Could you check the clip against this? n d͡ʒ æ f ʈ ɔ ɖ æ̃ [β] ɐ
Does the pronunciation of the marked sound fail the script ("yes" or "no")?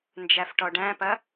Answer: yes